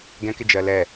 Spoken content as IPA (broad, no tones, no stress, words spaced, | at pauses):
ɡɛ̃kɪd͡ʒɜ lɛ